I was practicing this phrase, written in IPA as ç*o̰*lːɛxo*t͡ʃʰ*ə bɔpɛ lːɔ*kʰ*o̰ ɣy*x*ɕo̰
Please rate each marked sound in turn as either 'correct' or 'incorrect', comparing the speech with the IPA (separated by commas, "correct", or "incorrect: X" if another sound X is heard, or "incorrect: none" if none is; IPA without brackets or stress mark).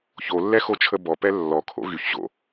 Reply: incorrect: o, correct, correct, incorrect: ç